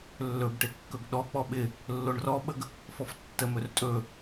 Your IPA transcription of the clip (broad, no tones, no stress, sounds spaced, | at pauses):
lː ɵ b ʈ e kː ɵ ɡ ɗ ɔ k͡p ɔ ɓ ɪ | lː o ɳ r ɔ ɓ ə ɡ | f ɔ f tː ə m ɵ r tʼ ɵ